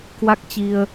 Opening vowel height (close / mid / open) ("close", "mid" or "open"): open